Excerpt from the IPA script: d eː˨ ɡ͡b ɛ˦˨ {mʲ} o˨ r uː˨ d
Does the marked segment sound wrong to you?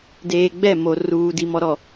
yes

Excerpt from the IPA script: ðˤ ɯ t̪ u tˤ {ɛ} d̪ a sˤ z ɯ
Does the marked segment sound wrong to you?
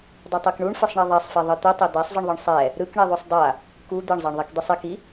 yes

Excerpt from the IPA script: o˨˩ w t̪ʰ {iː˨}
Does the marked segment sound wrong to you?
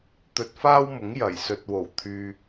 yes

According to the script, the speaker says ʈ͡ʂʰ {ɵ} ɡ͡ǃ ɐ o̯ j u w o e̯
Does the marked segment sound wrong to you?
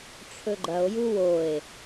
no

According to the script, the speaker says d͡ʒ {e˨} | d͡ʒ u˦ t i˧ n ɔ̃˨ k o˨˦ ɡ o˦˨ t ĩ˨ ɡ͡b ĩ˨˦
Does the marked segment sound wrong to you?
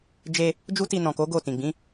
yes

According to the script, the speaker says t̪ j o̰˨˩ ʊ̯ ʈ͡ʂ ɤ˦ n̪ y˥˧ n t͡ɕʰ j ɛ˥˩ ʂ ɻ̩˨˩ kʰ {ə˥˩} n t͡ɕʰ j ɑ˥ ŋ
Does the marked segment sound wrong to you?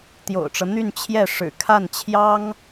yes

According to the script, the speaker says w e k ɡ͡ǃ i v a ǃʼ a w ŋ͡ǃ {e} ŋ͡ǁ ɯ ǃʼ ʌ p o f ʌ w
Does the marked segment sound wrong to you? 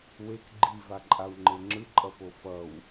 no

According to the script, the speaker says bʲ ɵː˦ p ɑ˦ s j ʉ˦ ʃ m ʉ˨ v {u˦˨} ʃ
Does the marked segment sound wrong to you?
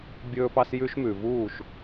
yes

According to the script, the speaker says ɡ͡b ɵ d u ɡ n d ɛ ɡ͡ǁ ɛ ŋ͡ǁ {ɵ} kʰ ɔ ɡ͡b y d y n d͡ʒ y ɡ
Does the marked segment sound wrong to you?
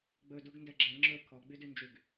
no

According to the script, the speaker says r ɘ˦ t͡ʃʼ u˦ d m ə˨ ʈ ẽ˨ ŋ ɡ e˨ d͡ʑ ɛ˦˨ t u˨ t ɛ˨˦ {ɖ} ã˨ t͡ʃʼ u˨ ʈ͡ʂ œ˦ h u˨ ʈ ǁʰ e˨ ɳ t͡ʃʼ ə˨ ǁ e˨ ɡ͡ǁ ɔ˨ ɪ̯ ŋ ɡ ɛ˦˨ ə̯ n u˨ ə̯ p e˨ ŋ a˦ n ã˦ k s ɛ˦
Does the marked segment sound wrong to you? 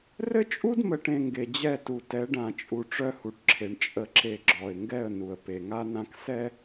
no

